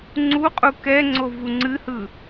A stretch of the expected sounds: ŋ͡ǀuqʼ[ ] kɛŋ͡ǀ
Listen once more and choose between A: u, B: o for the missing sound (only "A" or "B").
A